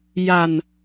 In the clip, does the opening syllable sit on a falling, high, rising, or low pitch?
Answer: low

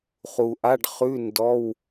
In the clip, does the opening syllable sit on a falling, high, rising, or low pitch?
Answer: low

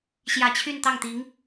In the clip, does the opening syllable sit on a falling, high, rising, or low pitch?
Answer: low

